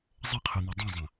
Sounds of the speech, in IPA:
zˤɘqʰun̪ɔ dˤɛ̃zˤɐ̃

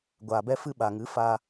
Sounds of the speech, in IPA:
ɡʷaː˨bɛ˧fɨ˧ ɓa˨ŋɨ˨˦faː˧

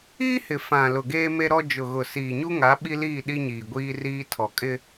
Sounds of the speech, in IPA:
iː˦hɪ˨ fã˨ lʊ˨ɡeː˦me˦ɾɔ˦ d͡ʒʊ˨ɣʊ˨ siː˨ɲu˦ŋa˨˦ ɓi˦liː˦˨ɗi˦ɲiː˨ ɡʷiː˦riː˦ tʰɔ˨kʼɪ˦

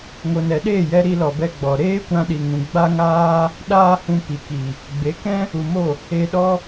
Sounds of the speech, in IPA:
ŋo˨nɛ˨ɗeː˦˨jɛ˧ ɾi˧lɔ˨bɛ˧ ɡ͡bɔ˨ ɾeː˦kʷã˧ɗi˨ŋũ˨ ɡ͡ba˦ŋaː˦ | ɗaː˦hũ˧ pi˨ki˨ | ɡ͡be˨˦kɛ̃˦ | u˨mo˦˨ | e˧ɗɔ˦

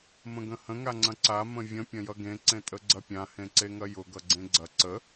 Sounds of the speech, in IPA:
mə̃ɡə̃hə̃ ŋaŋ͡ǀɐ̃ǀa mə̃vʲə̃ pʲɐ̃jʌɡẽ ǀẽtʼəɡ͡ǀɐpʲã hẽǀeŋɐjʊ ɡʌɡ͡ǀẽɡ͡ǀɐ ǀə

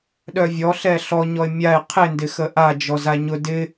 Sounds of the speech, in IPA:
ɗœvʲɔ ɬɛɬɔɲɔɪ̯ mʲaɪ̯ qʰɪndɪ xəʔa d͡ʒɔzaɲʊ dɪ

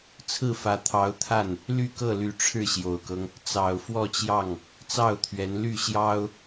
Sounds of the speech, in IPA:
t͡sʰɹ̩˥˩fä˧˥t̪ʰɑ˧˥ʊ̯t̪ʰa˥˩n | ly˥˧kɤ˥˩ly˧˥ʈ͡ʂʰɻ̩˥˩ ɕjo˨˩ʊ̯kɤ˦ŋ | t͡sɑ˨˩ʊ̯ fwɔ˥˧t͡ɕjɑ˥˩ŋ | t͡sɑ˥˩ʊ̯t̪ʰɥɛ˧˥n ly˥˩ɕjɑ˥ʊ̯

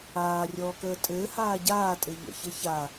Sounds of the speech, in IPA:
aːrʲɔːkəː tʼɘː haːɟaːtʼɘ ʎə̰çɘ ça

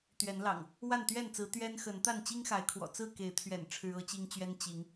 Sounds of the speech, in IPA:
t̪ɥɛ˨˦nlɑ̰˨˩ŋ | wa˥˨nt̪ɥɛ˥˨nt͡sɹ̩˨˦ t̪ɥɛ˦nxə˨˦nt̪a˥˨n t͡ɕi˦ŋxa˨˦ɪ̯kʰwɔ̰˨˩ t͡sɹ̩˥˨ke˨˦ɪ̯t̪ʰɥɛ̰˨˩n ʈ͡ʂʰɻ̩˦ɤ˦t͡ɕi˦ŋt͡ɕɥɛ˦n t͡ɕi˨˦ŋ

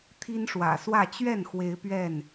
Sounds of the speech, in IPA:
t̪ʰi˦nʂwä̰˨˩swä˥˨ t͡ɕɥɛ˥˨n xwe˦ɪ̯pɥɛ˥˨n

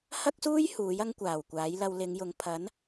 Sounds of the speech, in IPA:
hɐ˥k̚suː˥j huː˨˥jɐ˥ŋkʷaː˨˩w kʷaː˨˥jlɐ˧w lɪ˨˧ŋjʊ˨˧ŋ pʰɐ˨˥n

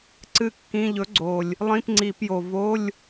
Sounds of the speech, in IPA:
ǀɨ˥˩kːĩ˧˥˧ ʎɵ˨˥ ɡ͡ǀo˨˩lʲ | lˠĩ˧˥˧pŋ͡ǀi˧˩˧pjo˨˩ vo˧˥˧lʲ

